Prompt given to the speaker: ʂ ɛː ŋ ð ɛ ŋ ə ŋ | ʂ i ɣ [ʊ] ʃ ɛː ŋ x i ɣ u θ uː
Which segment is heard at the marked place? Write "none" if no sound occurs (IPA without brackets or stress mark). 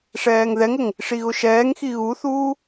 ʊ